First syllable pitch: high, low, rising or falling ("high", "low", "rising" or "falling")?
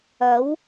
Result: rising